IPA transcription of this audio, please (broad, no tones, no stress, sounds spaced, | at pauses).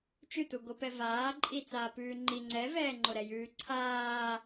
t͡ʃ ʉ t u ɡ o p ɛ v aː ǃʼ i t͡s aː p ʉː ŋ͡ǃ i ŋ͡ǀ ɛ v ɛː ŋ͡ǃ o ɾ ɛ j ʉː ǀʰ aː